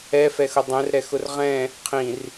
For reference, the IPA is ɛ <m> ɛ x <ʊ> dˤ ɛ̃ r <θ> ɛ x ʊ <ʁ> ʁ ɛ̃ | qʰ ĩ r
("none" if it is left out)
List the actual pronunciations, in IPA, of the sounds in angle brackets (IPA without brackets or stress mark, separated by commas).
f, ʊ, ɾ, r